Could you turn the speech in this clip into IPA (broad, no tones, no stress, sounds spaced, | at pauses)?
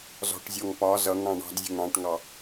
z ɔ̤ ʈ zʲ ɔ ŋ p ɒ z ʌ ŋ ɽ ɑ̃ ɳ ɑ̤ d zʲ ə̤ ŋ ɽ ɑ̃ ʈ ŋ ɑ